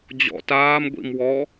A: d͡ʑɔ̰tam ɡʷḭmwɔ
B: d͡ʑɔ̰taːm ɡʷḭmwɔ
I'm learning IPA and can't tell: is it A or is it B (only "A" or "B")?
B